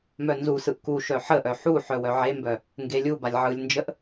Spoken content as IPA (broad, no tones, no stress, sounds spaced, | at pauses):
m œ n z u s ɯ ʔ k u ʃ œ ħ ə ʔ œ ħ u ħ œ w œ ʕ e m b œ | ŋ ɡ e lʲ u b a lʲ ʕ ɯ lʲ n d͡ʒ ə ʔ